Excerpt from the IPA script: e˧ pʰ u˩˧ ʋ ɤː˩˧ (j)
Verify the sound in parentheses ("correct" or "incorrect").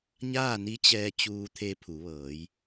correct